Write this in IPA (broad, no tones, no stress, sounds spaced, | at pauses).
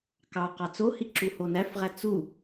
k ɑ q ɑ t͡s o h i ǁ u h o n æ f ʁ æ t͡s u